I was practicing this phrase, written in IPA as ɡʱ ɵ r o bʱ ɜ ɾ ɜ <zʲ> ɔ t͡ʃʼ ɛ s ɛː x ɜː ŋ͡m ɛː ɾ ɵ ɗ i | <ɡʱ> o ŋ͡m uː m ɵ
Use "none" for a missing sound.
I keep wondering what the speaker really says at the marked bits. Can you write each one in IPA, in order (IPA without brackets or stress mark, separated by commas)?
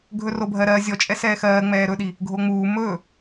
zʲ, ɡʱ